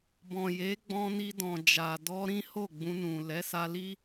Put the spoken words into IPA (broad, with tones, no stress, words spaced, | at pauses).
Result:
bɔ̃˨je˨˦ ɡ͡bɔ̃˧ni˧ dɔ̃˨ d͡ʒa˨dɔ˧ ɾĩ˦ho˦˨ɡ͡bũ˧nũ˨ lɛ˨˦sa˧li˦